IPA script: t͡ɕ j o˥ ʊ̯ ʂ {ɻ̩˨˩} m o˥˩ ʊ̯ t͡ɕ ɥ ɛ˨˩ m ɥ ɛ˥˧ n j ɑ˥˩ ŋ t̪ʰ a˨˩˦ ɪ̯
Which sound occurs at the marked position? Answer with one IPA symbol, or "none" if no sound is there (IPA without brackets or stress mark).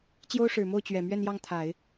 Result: ɻ̩˨˩